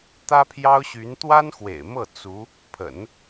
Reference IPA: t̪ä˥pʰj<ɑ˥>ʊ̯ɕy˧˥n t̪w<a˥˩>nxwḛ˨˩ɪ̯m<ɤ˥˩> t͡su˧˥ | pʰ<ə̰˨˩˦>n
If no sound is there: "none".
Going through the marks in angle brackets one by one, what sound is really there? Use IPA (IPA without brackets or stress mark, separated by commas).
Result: ɑ˥, a˥, ɤ˥˩, ə̰˨˩˦